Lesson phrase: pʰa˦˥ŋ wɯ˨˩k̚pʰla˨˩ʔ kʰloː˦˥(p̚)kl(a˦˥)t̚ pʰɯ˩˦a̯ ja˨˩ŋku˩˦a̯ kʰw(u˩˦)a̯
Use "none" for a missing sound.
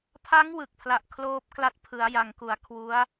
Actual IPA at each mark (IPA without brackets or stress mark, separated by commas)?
p̚, a˦˥, u˦˥